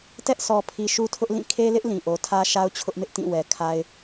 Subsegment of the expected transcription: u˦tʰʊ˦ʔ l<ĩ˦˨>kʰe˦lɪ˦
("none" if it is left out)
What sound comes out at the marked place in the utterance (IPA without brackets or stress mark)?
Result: ĩ˦˨